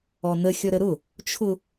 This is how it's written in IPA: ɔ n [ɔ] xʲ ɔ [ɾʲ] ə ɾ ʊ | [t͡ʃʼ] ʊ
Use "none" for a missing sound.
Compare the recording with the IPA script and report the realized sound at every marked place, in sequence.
ə, ɾ, t͡ʃʰ

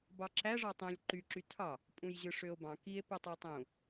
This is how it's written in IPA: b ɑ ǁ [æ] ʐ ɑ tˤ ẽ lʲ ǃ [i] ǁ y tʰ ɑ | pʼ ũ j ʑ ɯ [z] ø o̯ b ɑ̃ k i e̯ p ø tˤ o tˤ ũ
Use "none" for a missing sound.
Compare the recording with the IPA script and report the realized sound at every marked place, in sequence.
æ, y, ʂ

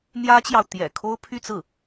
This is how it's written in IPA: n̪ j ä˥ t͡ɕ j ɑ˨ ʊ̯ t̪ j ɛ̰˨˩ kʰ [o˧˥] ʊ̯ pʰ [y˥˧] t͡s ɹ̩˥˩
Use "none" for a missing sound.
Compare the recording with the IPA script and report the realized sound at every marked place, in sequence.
o˥, y˥˧

